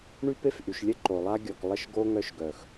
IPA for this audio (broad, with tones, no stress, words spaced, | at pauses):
ɳy˦pe˦fʔy˨ʃlʲə˦ ǃo˨lˠa˦ɡʲɔ˨k lˠə˦ʃɡo˦ ŋœ˦ʃɡœ˨x